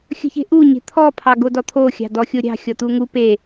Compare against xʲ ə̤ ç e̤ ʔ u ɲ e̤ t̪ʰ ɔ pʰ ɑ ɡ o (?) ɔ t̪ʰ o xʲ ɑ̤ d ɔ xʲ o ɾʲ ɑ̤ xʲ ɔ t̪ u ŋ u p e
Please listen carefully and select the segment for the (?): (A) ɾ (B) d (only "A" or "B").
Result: B